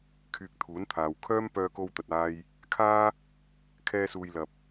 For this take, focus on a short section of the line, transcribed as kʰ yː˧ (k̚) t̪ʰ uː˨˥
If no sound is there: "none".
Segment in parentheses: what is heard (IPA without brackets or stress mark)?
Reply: k̚